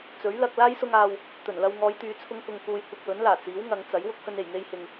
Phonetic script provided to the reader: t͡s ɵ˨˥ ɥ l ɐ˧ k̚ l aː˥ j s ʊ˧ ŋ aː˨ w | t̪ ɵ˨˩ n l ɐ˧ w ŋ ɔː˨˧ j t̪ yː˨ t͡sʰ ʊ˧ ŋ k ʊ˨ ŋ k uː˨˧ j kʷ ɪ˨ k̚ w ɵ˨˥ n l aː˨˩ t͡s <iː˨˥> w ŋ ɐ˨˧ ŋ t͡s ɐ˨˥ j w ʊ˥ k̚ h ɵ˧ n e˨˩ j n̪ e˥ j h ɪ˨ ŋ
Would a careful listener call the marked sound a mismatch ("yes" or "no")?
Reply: no